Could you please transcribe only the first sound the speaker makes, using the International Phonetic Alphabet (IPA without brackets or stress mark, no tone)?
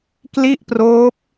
k